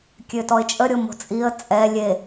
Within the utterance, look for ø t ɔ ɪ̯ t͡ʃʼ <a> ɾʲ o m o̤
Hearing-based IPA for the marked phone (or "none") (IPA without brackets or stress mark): ə